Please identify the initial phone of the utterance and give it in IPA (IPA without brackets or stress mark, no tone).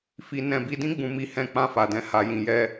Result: f